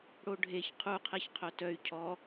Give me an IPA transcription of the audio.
ɽ o ɖʱ e ç qʰ u qʰ e ç qʰ œ t œ y̯ cʰ ɔ

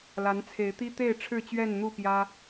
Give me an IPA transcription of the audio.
l a˨˦ n t͡sʰ e˨˦ ɪ̯ t̪ i˦ t̪ e˥˨ ɪ̯ ʈ͡ʂʰ ɻ̩˥˨ t͡ɕ ɥ ɛ˥˨ n n̪ u˥˨ p j ä˦

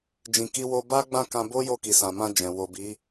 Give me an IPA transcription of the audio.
d͡ʒ ĩ˧ k i˦ w o˧ b a˦ ɡ͡b ã˦˨ k ã˧ b o˦ j o˦˨ k i˨ s ã˨ m ã˧ d͡ʒ ɛ̃˨ w o˨ b i˨˦

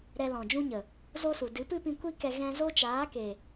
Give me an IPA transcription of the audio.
ɾ ɛ˧ l ɔ̃˨ d͡ʒ ũ˦ ɲ ə˨ | z o˦ s u˨ d ɨ˨˦ p ɨ˦ p ĩ˧ kʷ i˦ k ɛ˧ ɣ ɛ̃˧ z o˦ t͡ʃ aː˨˦ k e˨

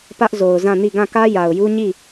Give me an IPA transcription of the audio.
p ä˦ ʔ z o˨ ʊ̯ z ã˦˨ n i˦˨ ɡ ã˦˨ k ä˦ j a˨ ʊ̯ j u˦ ɲ i˦˨

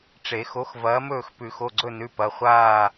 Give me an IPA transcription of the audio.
ʈ͡ʂ e˨˩˦ x o˨˥ x v ɐː˨˥ m ɵː˥˨ x p ʉ˨˩˦ x o˩˧˩ ɡ͡ǀ ɵ˥˨ n ʉ˩˧˩ p ɐ˩˧˩ χʷ aː˥˨

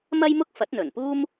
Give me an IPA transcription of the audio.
m ɐ˥ j m ʊ˥ k̚ f ɐ˨˥ t̚ n̪ ɵ˨˩ n p uː˥ m

